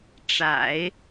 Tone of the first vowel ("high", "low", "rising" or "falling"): low